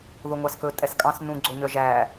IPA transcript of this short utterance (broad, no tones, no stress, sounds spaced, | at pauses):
ð o ŋʷ ɑ s k ɵ tʼ ɛ s kʼ ɑ̃ s n ũ ɡ͡ǀ o ɲ œ ʒ æ